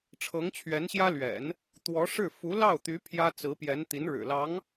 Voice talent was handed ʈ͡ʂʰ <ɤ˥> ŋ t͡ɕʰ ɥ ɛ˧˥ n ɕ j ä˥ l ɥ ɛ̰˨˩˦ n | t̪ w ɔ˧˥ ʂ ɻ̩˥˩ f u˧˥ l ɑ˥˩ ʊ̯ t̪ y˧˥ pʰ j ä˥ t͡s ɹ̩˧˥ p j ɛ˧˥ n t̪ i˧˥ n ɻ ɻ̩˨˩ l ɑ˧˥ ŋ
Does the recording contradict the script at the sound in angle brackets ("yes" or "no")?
yes